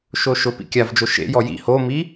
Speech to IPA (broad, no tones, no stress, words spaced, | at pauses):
ʃoʃʊ pḭkʲav d͡ʒoʃḛ jɔjḭ homi